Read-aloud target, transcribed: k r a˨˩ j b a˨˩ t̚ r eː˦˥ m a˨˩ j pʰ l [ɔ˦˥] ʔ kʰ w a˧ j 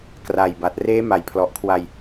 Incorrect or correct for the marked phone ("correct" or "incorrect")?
incorrect